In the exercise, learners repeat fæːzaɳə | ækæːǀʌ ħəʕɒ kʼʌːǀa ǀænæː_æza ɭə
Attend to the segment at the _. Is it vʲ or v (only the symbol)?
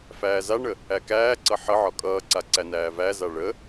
v